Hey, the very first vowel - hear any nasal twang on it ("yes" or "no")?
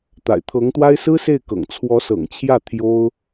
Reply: no